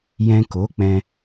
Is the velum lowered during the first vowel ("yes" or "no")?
yes